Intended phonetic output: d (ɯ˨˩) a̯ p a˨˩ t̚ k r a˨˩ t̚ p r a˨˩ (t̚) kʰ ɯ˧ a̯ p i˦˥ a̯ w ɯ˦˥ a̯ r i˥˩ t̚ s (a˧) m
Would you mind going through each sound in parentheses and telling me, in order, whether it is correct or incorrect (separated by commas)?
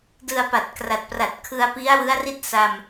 incorrect, correct, correct